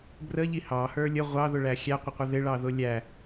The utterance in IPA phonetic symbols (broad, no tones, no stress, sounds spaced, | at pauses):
b r ə ʎ i h ɑ h ə˞ lʲ ə ʁʷ ɑ ð ʊ ɭ æ xʲ æ qʷ ɪ qʷ ɪ ð ɪ ɭ ɑ ð ʊ lʲ æ